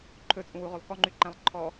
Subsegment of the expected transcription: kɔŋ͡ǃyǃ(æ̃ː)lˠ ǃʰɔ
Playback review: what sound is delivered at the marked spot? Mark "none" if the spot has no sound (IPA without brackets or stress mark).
æ̃